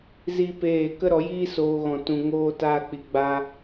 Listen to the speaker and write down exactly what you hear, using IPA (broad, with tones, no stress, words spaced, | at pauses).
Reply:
zi˦peː˦˨ kə˦ɾɔ˨˦jiː˦soː˧ ɣɔ̃˧tũ˧ŋoː˦ taː˦k͡pi˧ɡ͡baː˦